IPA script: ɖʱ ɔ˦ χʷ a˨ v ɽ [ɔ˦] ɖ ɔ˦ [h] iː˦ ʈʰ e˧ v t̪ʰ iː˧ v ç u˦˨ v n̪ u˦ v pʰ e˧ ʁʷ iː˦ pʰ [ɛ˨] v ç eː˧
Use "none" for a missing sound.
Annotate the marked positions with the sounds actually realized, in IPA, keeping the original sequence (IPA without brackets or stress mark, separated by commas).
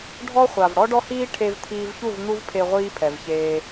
ɔ˦, h, ɛ˨